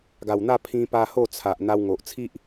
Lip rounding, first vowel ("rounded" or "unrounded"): unrounded